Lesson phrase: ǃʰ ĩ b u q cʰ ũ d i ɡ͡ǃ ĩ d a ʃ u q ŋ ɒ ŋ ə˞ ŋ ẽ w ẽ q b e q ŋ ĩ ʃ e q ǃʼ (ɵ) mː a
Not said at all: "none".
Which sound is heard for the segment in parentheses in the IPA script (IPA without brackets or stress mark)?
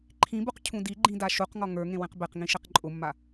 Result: ʊ